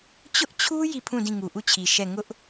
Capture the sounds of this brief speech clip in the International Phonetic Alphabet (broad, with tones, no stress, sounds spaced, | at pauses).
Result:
t͡ɕ ʊ˦ ʔ t͡ɕʰ u˦ j i˦˨ pʰ ũ˦˨ d ĩ˦˨ ŋ u˨ ʔ u˦˨ t͡ɕʰ i˨ ʃ ɛ˦˨ ŋ ʊ˦ ʔ